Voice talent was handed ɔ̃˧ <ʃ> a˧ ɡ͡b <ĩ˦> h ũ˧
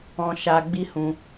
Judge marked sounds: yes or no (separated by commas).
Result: yes, no